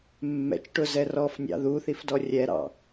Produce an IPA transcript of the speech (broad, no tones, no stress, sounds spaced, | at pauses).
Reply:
mː ɛ̰ t͡ʃ ʈ ʊ z ɛ r ɔ f nʲ ɑ̰ ð u θ i f d ɔ rʲ ɛ ɾ ɑ̰